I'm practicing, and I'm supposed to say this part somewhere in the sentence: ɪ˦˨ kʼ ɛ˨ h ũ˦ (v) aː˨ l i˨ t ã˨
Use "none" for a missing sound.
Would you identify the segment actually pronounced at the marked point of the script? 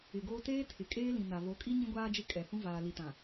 v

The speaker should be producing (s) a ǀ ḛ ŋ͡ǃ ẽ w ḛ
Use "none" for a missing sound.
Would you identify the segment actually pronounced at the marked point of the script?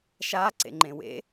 ʃ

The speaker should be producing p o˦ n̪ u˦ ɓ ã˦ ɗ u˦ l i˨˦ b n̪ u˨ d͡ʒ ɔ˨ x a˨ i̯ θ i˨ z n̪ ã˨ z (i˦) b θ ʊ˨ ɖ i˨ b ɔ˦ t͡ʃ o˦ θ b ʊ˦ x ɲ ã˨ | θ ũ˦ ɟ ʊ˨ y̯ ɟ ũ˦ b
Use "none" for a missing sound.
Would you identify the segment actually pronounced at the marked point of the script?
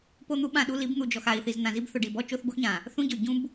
i˦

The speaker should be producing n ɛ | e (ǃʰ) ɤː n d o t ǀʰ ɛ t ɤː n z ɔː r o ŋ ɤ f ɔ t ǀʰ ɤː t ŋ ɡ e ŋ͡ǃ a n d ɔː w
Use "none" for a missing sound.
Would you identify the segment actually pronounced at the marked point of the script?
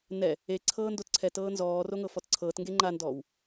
ǀʰ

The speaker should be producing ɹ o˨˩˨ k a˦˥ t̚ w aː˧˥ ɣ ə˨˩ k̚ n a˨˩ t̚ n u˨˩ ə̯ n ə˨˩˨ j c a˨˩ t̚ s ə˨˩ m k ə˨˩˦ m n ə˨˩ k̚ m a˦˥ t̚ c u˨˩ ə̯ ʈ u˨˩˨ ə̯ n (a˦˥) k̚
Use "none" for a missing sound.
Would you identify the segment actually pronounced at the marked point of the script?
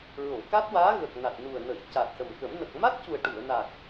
a˨˩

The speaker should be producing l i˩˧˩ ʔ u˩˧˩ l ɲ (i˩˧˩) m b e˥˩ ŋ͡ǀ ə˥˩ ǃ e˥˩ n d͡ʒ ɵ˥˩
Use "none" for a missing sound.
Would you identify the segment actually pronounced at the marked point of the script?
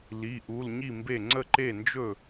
i˥˩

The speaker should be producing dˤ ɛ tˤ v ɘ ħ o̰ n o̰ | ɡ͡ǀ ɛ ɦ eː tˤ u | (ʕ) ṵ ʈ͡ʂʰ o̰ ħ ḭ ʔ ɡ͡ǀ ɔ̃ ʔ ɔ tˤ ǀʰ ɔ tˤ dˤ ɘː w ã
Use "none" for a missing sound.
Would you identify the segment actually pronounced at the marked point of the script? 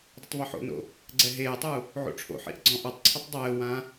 ʕ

